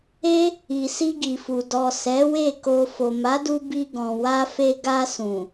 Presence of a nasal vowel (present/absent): present